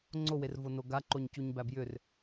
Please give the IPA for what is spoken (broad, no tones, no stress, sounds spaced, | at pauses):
ŋ͡ǀ o w e r v o n o ɡ a ǃ o ɲ c u ɲ b æ b j ʏ r